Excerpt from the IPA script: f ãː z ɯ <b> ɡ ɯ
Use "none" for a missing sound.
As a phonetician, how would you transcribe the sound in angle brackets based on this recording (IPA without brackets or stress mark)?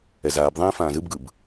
b